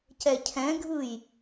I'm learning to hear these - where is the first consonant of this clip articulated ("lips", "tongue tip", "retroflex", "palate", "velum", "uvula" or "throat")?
palate